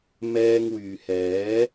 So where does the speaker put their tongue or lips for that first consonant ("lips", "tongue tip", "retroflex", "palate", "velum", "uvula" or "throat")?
lips